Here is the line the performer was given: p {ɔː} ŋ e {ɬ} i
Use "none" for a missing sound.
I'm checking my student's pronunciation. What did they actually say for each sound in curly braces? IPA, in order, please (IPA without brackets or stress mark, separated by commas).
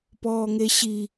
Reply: ɔː, ɕ